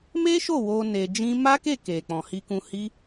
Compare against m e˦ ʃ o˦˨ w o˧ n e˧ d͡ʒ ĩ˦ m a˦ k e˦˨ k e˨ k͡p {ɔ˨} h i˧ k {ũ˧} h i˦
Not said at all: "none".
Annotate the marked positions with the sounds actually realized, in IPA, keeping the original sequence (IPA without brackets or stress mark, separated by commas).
ɔ̃˨, ũ˧